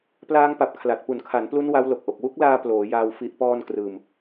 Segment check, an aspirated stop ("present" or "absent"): present